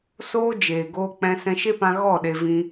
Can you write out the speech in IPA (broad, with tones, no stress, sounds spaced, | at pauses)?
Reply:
s oː˦ d͡ʒ eː˨ ɡ oː˧ k͡p ɛ̃˧ s ɛ̃˧ ʃ e˦ p ã˧ ɣ ɔ˦˨ ɗ e˧ v ĩ˧